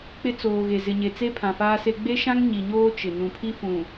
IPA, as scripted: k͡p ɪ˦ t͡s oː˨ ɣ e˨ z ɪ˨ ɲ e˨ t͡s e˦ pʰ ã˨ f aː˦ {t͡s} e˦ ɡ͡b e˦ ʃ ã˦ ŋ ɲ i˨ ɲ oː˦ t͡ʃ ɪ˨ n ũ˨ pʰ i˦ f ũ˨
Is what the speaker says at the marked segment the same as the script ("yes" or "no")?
no